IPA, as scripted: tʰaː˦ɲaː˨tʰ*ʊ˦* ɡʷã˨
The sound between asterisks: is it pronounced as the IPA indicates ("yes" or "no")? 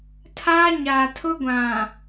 yes